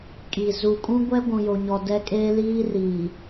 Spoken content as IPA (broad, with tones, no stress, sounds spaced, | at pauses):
kʼ i˨ z u˨ kʼ ũ˦ ɡʷ ɛ˦ ɡʷ ũ˨ j o˨ ɲ ɔ˨ d ɛ˦ kʼ eː˦ l iː˦ r iː˨